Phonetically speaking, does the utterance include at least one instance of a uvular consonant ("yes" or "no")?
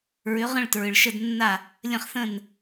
yes